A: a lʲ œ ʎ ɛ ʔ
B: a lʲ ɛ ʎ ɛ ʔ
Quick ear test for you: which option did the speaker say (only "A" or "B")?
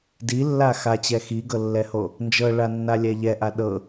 B